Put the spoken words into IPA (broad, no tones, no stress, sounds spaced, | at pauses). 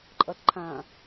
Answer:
ǃʼ ʌ t ǃʰ ã